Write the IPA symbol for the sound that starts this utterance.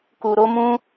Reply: k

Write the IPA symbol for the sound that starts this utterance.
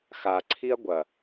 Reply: x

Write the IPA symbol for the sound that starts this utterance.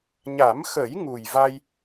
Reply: ɲ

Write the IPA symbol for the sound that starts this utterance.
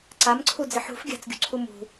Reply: ǀ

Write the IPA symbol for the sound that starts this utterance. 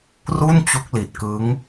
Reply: r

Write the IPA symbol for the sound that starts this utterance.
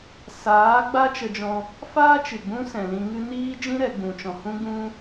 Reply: s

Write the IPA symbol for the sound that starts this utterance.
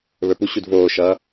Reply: β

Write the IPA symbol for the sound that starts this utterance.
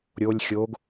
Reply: ɾʲ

